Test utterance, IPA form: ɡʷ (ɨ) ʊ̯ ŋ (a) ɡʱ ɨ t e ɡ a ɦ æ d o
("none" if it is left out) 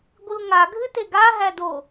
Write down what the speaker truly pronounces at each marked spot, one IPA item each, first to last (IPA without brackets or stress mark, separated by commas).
ɨ, a